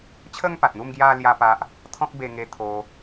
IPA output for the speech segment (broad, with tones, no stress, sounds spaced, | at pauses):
t͡ɕʰ ə˦ ŋ p a˨ t̚ n̪ u˥˧ m ɡ j a˦ l j a˦ p a˦ ʔ | t̪ʰ ɔ̃˦ k̚ b e˧ ŋ e˧ t̪ʰ o˧